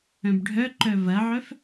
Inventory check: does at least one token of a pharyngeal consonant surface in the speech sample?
yes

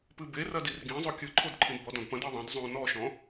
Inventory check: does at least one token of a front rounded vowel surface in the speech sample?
no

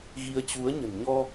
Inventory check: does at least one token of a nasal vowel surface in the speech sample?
no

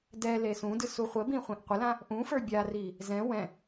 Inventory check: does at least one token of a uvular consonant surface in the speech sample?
yes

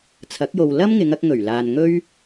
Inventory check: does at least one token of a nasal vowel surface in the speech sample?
no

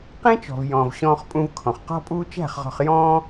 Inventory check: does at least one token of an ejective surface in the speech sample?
yes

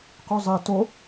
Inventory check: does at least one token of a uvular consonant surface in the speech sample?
yes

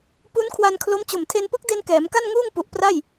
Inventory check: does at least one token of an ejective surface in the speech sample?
no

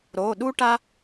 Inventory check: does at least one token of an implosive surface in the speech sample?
yes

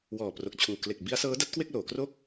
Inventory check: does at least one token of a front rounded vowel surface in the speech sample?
no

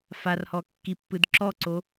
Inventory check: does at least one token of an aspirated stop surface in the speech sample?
no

